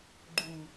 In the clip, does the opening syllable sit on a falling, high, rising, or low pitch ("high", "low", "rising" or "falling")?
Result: high